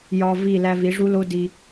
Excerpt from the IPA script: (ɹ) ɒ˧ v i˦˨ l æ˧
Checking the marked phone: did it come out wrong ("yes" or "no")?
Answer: yes